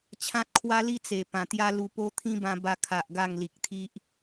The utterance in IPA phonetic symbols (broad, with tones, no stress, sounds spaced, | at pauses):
t͡ɕʰ ã˦ t̚ kʰ w a˦ l i˦ t͡s e˨˩ p ã˨˩ t̪ j a˦ l u˧ p o˦ t̪ʰ ĩ˦ b ã˧ b a˧ kʰ a˨ ʔ ɡ a˥˧ ŋ l i˨ k̚ t̪ʰ i˦ ʔ